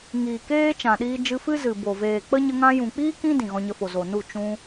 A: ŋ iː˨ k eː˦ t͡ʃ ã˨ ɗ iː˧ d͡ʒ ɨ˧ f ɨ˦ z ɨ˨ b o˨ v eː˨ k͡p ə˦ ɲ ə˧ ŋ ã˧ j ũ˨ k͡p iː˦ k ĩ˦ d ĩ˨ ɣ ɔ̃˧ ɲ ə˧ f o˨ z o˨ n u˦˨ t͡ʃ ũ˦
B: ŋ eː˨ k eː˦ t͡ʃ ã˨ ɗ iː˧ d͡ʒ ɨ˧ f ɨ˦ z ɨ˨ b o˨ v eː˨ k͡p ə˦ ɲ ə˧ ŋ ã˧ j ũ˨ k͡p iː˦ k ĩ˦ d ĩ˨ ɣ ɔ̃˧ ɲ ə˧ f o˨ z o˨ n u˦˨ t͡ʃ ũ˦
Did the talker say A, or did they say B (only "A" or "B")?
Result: A